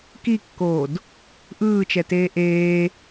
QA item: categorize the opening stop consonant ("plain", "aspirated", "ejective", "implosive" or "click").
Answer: plain